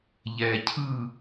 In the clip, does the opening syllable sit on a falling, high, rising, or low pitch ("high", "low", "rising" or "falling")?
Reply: low